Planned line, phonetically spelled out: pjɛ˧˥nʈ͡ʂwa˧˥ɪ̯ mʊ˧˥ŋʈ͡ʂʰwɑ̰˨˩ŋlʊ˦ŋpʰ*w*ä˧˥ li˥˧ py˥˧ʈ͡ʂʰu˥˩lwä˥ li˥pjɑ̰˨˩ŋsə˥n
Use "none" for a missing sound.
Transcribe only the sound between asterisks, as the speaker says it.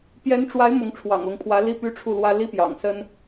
w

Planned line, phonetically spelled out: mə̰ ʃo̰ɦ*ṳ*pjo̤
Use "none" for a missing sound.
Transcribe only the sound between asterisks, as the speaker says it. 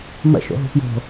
ṳ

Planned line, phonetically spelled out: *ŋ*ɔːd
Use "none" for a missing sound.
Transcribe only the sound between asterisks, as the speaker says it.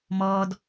m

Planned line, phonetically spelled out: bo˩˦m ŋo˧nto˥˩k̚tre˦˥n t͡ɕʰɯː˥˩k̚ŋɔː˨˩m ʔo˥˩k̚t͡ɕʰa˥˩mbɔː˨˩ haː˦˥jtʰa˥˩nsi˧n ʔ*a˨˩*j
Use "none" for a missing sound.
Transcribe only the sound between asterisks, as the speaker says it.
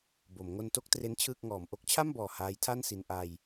a˧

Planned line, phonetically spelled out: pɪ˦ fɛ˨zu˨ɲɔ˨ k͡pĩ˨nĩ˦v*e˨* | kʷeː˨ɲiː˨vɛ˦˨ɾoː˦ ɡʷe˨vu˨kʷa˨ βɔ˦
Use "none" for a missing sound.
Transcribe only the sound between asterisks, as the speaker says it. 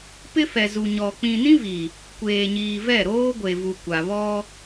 i˨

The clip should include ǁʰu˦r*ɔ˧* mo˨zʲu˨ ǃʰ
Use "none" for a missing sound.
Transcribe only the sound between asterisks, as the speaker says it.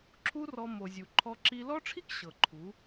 ɔ˧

